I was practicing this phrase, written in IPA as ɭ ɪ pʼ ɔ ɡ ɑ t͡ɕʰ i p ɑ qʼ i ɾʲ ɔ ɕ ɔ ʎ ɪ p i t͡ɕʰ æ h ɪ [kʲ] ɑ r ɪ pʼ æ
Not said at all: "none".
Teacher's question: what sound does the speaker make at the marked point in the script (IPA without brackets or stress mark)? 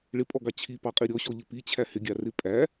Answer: ɡʲ